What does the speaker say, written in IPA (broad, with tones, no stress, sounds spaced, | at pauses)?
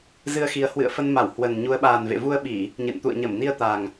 z ɨ˧ ə̯ x i˨˦ ə̯ h w ɨ̰˧˨ ə̯ f ə˧ n m a˧˩ w h w ə˨˩ n ɲ u˨˦ ə̯ ɓ aː˨˩ n v ḛ˧˨ v u˧ ə̯ ɓ i˧˩˨ | ɲ ɨ̰˧˨ n t̪ ṵ˧˨ ə̯ ɲ ə˧˩ m n i˧ ə̯ t̪ a˨˩ ŋ